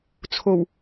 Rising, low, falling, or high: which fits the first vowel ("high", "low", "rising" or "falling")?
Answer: low